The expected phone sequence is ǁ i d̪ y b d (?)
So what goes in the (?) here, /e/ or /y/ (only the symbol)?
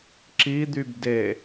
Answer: e